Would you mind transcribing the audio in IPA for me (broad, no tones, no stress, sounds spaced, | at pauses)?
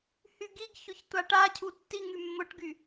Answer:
h y ɡ i ɡ ç ʊ ç tʷ a ʈ a cʰ u tː i ŋ y mː ʊ ʈ ɡ y